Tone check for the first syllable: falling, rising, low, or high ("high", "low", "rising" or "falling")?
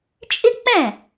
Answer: high